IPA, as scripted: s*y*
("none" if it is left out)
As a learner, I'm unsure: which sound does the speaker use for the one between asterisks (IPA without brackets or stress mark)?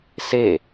e